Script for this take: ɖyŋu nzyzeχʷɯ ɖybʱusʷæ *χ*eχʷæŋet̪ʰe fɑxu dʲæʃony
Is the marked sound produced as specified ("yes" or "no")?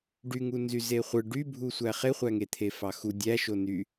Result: yes